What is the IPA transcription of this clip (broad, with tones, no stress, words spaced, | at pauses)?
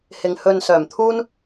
hɪ˨ŋ hɵ˨n sœː˨˩mt̪ʰuː˥n